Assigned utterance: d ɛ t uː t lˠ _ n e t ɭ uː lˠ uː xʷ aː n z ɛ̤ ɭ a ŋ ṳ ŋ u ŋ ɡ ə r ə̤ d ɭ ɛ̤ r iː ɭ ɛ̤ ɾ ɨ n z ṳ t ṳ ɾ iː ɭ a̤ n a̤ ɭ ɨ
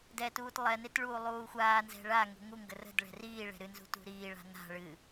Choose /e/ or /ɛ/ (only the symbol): ɛ